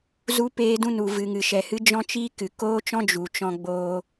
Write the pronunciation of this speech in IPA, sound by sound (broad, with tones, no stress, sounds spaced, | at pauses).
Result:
z u˦ p eː˦ d ũ˦ n u˨ v ɨ˨ ŋ ɨ˨ ʃ ɛ˨ h ɨ˦ d͡ʒ ɔ̃˦ t͡ʃ iː˦ k ɨ˨ k oː˦ t͡ʃ ɔ̃˦ d͡ʒ u˨ t͡ʃ ɔ̃˧ ɡ͡b oː˧